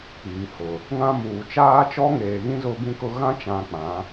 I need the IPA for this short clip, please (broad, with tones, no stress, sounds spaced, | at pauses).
k͡p iː˨ h ʊ˨ | ŋ ã˦ m uː˨ t͡ʃ aː˦ t͡ʃ ɔ˦ ŋ eː˨ ɣ ĩ˦ z ʊ˦ b ĩ˦ k ʊ˦ ɣ ã˦ t͡ʃ ã˨ k͡p ã˨˦